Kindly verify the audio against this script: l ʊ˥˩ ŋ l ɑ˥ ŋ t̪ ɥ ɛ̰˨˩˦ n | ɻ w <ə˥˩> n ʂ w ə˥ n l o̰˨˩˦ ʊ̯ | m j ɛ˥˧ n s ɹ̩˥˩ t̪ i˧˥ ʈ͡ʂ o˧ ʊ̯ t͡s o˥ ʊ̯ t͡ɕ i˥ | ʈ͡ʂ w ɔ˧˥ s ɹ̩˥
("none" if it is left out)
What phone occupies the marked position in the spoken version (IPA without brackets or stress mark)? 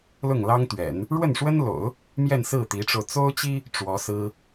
ə˥˩